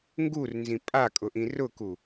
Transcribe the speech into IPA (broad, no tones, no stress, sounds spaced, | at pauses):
ŋ ɡ u r n z ĩ pʼ a kʼ ʊ ʔ ĩ r ʊ k u